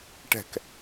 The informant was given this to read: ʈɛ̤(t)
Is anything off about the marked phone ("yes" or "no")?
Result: yes